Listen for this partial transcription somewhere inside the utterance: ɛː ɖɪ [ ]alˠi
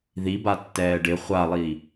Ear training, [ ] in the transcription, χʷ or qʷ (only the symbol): χʷ